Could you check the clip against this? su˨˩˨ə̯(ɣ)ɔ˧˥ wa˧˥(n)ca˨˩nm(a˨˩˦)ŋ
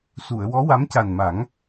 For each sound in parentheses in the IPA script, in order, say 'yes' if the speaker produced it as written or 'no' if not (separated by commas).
no, no, yes